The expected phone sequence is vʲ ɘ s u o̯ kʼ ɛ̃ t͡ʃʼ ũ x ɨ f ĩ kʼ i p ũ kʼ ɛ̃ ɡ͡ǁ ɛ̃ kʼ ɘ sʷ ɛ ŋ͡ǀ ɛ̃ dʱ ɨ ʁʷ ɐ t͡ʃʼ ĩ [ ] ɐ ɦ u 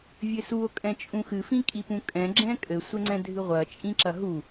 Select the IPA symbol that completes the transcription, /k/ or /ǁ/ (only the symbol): ǁ